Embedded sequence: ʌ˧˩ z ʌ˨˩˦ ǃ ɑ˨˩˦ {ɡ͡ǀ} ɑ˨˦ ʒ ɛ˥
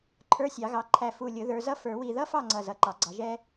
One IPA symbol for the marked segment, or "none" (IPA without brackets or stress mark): ɡ͡ǀ